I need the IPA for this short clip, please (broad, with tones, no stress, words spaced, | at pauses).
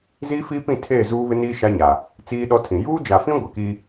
ziː˦fiː˦pĩ˦˨tʰeː˦˨ zuː˦βɪ˦niː˦ ʃa˦ɲa˨ | t͡siː˦ɗɔ˦tʰĩ˨ juː˦d͡ʒa˨fĩ˦ ɡʷɪ˨kiː˦